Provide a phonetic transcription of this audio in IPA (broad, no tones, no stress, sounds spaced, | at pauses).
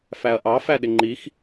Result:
f æ ɐ̯ ʔ ɑ f æ ɗ ɪ ŋ͡ǃ i x